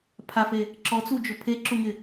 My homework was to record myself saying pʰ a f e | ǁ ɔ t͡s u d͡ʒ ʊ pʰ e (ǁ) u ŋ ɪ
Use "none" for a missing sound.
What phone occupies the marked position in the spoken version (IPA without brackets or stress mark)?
ǁ